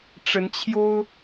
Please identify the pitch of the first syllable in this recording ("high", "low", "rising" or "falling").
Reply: rising